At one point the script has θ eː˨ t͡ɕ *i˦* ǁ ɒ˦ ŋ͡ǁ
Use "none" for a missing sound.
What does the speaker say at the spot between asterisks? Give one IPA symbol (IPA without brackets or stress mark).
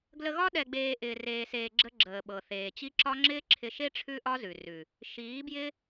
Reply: i˦